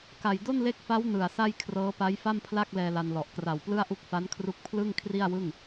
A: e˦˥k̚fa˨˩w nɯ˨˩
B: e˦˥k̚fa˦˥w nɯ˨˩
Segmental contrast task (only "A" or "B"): B